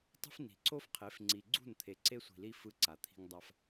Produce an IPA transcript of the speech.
tˤ ṳ˦ f n i̤˨ ǀ o˦ f qʰ e˨˦ f ŋ͡ǀ i˨ ɡ͡ǀ ṳ˦˨ n t̪ʰ e˨ ǀ e˦ sʷ i̤˨ l i˦ f ɯ˦ ǀ a˨ t̪ʰ i̤˦ ŋ dˤ a˦ f

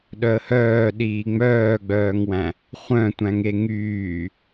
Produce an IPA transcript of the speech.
ɗ œ ə̯ h œː ɗ iː ŋ͡m œː ɡ͡b œː ŋ w æ̃ | χʷ œ̃ tʷ æ̃ ŋ e ŋ yː

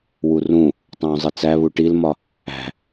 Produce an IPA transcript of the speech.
w u r ũ | tˤ õː zˤ i t͡s æ β u ʈ i l m ɒ | æ̤

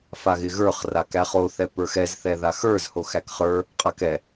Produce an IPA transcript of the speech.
f a ɣ ɪ ɣ ə˞ χ r a k æ χ o θ ɛ p ə˞ x ɛ z θ ɛ ð a x ə˞ z h o x æ k χ ə˞ | qʼ a k ɛ

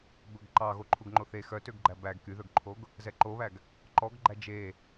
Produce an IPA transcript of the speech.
b ɵ ɡ ǃ ɑ ɣ o ǃʰ u ɡ ŋ͡ǃ o θ e x œ t ø ɡ ɡ͡ǃ æ b æ ɡ k y ð œ ɡ ǃʰ o ɡ | z ɛ ǃ o β æ ɡ | ǃ ɔ ɡ ɡ͡ǃ æ d͡ʒ e

